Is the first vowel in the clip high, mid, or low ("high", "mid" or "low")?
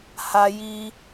low